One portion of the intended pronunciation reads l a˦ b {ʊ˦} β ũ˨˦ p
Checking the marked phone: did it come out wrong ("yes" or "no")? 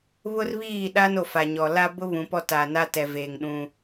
no